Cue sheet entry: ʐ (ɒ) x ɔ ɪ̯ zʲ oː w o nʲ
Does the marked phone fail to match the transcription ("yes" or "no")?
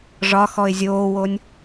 no